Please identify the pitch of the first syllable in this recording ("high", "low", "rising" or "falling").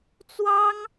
high